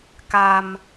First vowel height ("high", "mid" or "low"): low